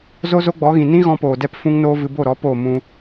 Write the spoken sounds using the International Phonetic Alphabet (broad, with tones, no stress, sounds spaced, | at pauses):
z o˦ z o˦ ɡ͡b ɔ˨˦ ɣ ĩ˨ n ĩ˦ ɣ ɔ̃˧ p oː˨ d ɛ˧ p f ũ˦ ŋ n oː˦ v ɨ˧ b o˦˨ ɾ ɔ˨˦ p oː˦˨ m ũ˧